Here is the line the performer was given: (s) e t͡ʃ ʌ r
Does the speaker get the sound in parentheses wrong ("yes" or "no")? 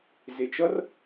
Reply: yes